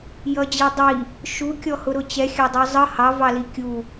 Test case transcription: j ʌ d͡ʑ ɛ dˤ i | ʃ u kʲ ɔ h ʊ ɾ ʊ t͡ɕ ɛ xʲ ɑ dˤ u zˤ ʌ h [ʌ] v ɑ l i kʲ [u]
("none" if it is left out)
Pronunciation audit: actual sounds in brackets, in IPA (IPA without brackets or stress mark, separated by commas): ɑ, u